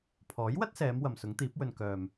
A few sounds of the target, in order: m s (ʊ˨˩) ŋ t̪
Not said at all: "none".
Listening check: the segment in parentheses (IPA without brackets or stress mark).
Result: ʊ˨˥